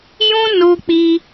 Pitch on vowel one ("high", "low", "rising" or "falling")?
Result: high